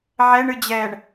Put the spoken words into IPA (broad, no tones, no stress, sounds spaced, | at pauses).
ʕ ɛ ɳ ɨ d͡ʑ ɛː ɳ